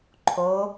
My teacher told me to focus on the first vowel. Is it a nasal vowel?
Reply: no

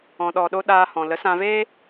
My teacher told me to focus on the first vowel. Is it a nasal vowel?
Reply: yes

